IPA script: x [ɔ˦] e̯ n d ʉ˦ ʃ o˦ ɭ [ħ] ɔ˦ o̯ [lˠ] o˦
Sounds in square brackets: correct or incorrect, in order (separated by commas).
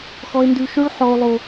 correct, correct, correct